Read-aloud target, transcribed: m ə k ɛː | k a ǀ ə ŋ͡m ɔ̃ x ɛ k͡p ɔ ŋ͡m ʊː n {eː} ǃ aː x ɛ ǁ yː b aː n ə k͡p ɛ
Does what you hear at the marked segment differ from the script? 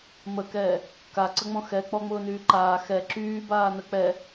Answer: yes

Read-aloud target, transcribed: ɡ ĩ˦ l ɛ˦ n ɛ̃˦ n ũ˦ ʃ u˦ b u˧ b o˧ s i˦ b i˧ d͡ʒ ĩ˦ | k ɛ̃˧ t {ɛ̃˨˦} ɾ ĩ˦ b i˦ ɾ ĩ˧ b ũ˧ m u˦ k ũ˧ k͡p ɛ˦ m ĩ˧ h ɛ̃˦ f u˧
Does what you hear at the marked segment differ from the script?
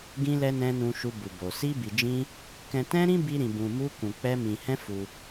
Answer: yes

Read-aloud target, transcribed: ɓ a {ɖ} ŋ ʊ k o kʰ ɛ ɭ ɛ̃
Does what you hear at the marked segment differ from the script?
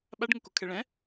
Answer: no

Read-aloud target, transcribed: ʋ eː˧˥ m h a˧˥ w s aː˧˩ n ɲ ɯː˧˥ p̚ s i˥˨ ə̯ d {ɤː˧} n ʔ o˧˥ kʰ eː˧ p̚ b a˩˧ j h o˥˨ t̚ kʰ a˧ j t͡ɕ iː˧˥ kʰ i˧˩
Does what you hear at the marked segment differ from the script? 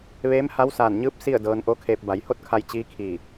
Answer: no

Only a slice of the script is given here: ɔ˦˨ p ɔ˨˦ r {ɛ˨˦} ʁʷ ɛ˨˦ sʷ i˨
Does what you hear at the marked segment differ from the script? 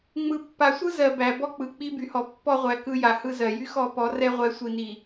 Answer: yes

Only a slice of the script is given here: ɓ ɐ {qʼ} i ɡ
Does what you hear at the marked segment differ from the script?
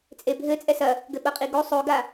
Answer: no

